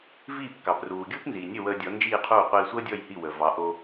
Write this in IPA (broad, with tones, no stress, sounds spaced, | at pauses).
v iː˥˩ p k ɑ˩ p r uː˩ ɡʲ uː˥ p n z iː˩ nʲ ə˥˩ w əː˧ dʲ ɔ˩˥ n d͡ʒ iː˥˩ qʰ uː˥˩ qʷ iː˧ sʷ əː˥ dʲ ɔ˥˩ j h i˥˩ w ə˩ v ɑ˩˥ ʔ o˧